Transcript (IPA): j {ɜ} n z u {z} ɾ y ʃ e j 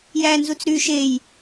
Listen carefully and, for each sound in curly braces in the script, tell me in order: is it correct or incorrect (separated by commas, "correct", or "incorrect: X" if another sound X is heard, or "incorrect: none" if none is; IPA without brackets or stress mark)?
incorrect: æ, incorrect: t͡s